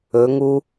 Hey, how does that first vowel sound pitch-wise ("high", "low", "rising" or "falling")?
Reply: rising